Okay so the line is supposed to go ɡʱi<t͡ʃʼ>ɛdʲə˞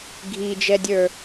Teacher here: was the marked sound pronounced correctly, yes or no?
no